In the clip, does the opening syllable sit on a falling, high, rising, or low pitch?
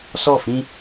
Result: falling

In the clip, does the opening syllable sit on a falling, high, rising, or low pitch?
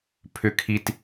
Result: high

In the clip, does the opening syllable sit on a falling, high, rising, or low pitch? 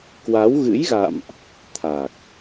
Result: rising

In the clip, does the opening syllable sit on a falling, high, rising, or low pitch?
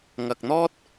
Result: low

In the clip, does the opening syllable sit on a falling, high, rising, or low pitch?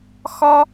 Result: high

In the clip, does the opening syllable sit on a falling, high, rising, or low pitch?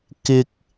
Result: high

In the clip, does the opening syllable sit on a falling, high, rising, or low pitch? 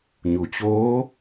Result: low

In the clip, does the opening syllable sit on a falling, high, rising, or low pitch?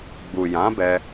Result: low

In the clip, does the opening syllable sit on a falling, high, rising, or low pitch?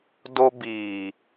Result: high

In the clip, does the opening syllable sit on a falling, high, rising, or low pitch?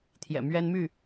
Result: low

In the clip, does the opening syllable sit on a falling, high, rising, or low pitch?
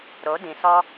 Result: rising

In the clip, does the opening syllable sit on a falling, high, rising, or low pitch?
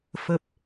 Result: low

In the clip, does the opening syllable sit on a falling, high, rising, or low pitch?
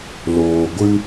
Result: low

